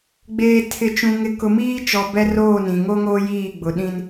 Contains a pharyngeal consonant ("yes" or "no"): no